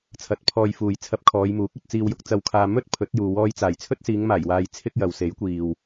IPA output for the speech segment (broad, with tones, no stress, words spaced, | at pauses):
t͡sʰɐ˨˥t̚pʰɔː˧jfuː˨j t͡sʰɐ˧p̚kʰɔː˨˧jmuː˨˥k̚ɵ˨t̚ t͡siː˨wjʊ˨˥k̚t͡sɐ˨wkʰaː˨ mɵ˥t̚ pʰɵ˨˥t̚juː˨ wɔː˧jt͡saː˨˩jt͡sʰɵ˥t̚siː˨˧ŋ maː˨˩jwaː˨j t͡sʰɪ˥k̚jɐ˨w se˨˥jkʷiː˨w